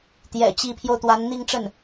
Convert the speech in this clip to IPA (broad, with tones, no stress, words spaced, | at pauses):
t̪jɛ̰˨˩t͡ɕi˧˥pʰjo˧ʊ̯t̪wa˧˥n n̪i˥˧ŋʈ͡ʂə˥˩n